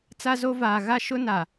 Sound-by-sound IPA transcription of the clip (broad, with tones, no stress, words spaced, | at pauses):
t͡sa˦zo˦vaː˨ ɣa˦ʃʊ˦ na˨